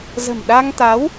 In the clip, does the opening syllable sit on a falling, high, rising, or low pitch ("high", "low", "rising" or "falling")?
low